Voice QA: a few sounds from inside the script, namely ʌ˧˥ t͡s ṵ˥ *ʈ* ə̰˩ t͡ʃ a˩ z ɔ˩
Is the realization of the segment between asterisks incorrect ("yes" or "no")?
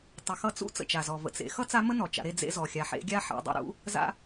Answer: yes